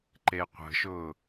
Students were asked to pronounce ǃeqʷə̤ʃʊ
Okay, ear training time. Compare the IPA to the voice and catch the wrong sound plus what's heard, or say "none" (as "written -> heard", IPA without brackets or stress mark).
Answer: none